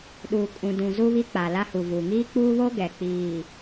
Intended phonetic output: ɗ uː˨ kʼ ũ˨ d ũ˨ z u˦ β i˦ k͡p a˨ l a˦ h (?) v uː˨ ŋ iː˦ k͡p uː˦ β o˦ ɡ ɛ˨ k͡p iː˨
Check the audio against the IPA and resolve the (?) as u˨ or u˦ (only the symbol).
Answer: u˨